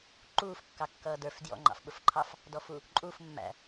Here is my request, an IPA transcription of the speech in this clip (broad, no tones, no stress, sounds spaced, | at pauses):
ǃ uː f kː ɑ kː ʌː d ə˞ f d j ɔ̰ ŋ͡ǃ ɑ̰ f ɓ ʊ f ǃʰ ɑ f | d ɔ f u | ǃʼ u f mː æ̰